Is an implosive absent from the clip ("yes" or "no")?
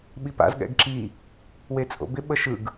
no